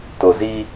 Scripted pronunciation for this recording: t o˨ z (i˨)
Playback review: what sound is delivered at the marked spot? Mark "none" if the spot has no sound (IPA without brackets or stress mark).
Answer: i˦